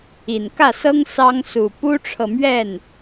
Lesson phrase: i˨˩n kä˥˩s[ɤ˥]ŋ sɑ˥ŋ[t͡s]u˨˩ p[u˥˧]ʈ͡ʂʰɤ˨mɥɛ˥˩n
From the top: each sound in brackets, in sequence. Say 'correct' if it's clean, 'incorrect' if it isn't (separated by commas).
correct, incorrect, incorrect